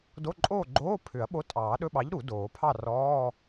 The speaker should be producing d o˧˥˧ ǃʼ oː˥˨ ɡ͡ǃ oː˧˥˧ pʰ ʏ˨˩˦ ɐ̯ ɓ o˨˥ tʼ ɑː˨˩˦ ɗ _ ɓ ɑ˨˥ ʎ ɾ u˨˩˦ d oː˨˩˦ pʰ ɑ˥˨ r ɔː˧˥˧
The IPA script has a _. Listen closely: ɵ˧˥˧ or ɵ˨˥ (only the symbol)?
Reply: ɵ˧˥˧